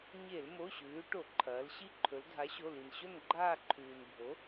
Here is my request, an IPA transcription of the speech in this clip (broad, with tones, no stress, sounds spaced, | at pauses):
ɲ e˧˩˧ l m o˩˧˩ ɕ ʉː˩˧ ʈ o˧˩˧ ǃʰ ɐː˩˧ l ɕ i˦˨ ǃʰ ɵ˩˧ l dʱ a˩˥ ɕ o˩˧˩ l i˩ n ɕ ɵ˦˨ n ɡ͡ǃ aː˦˨ ǃʰ ʉː˩ n bʱ o˩˥